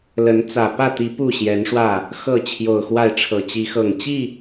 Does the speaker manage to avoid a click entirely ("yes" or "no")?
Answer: yes